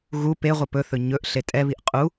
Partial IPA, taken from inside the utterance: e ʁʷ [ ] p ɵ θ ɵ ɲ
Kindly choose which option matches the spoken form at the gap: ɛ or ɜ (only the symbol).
ɛ